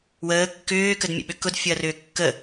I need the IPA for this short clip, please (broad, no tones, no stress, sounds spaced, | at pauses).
w əː kː ʏː k ə d mʲ ə̰ ɓ ʏ k ʊ d fʲ ʊ ɐ̯ r ʏː kː ə